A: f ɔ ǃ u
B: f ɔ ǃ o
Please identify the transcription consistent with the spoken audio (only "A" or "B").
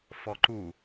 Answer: A